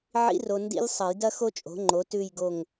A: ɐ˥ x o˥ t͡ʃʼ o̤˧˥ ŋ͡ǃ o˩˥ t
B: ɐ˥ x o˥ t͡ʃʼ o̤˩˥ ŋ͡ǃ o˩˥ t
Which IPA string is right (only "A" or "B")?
B